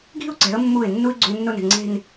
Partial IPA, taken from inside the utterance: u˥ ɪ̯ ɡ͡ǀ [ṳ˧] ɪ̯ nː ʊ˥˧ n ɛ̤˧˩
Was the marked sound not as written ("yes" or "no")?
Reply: no